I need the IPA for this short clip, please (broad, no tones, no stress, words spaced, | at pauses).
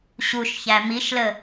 ɕuʃçæ miʃlə